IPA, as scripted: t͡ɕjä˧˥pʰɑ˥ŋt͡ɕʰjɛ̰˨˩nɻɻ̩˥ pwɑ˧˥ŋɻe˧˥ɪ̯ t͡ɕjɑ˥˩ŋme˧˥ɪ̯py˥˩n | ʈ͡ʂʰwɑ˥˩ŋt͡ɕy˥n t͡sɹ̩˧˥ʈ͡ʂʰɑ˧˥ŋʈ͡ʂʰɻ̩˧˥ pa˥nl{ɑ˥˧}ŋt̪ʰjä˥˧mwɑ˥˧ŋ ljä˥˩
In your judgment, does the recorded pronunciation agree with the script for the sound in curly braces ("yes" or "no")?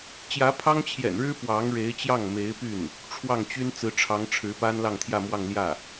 yes